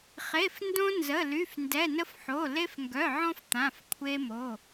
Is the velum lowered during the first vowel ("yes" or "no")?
no